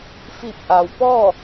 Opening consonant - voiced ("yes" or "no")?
no